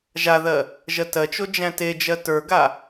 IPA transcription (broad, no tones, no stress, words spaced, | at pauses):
ʒaðɜ | ʒɜtɜt͡ʃo d͡ʒæ̃ted͡ʒɜ tə˞ɡa